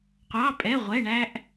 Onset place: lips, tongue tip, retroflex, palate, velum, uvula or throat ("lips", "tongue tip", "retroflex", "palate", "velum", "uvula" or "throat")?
uvula